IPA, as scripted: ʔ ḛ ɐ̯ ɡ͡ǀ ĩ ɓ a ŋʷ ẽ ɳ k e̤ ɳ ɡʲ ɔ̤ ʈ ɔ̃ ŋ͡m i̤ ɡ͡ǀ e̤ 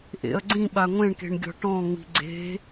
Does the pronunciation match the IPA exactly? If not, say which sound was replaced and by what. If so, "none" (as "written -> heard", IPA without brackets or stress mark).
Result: none